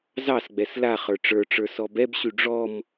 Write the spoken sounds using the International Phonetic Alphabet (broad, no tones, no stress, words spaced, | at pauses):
zɑsɡ͡bɛs laχə˞ ʈ͡ʂə˞ʈ͡ʂə˞ sɔbɛbɕy ɖ͡ʐɔm